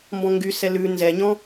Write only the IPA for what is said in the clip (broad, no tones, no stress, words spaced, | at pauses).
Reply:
mbɔ̃ŋɡysɛ lʉ nzɛɲɔ̃